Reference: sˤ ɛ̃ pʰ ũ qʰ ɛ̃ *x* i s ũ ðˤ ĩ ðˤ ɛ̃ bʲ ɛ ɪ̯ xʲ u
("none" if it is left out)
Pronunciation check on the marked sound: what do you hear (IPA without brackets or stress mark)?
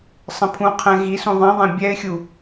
ɣ